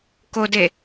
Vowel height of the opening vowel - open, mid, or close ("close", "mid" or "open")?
mid